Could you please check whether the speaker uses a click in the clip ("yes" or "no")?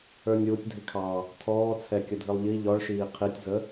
no